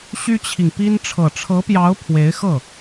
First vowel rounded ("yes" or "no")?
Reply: yes